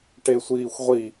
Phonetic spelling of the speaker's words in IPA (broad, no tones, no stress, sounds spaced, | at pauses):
ʈ e sʷ iː xʷ ʁʷ i